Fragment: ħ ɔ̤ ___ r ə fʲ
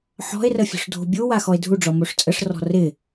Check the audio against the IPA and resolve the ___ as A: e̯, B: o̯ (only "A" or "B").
A